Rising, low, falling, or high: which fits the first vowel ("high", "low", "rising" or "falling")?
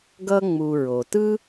high